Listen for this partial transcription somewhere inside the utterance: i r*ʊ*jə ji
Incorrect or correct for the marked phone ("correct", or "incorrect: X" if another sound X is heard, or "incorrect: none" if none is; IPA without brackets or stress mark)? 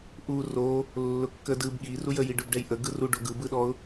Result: incorrect: u